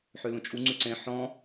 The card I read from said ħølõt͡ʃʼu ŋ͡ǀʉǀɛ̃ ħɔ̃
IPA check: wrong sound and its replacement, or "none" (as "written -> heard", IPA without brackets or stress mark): none